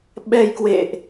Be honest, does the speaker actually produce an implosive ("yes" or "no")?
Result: yes